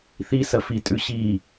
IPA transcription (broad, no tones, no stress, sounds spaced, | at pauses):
θ i s ɐ f i tʼ ʉ ɕ i